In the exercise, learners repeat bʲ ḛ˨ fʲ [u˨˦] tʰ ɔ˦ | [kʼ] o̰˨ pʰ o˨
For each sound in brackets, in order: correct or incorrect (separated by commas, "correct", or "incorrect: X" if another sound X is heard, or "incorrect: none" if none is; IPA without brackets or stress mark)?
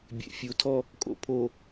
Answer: correct, correct